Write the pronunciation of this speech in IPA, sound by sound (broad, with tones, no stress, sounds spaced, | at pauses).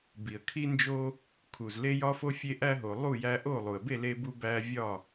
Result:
b i˨ ə̯ kʰ i˦ n d͡ʒ o˦ | kʰ u˨ z l e˦ j ɒ˦ f o˦ fʲ e˦ ʔ æ˦ ɦ o˨ lˠ u˥˨ j æ˦ ʔ o˥˨ lˠ u˨ ə̯ b e˥˨ l e˦ b u˦ b æ˦ vʲ ɒ˥˨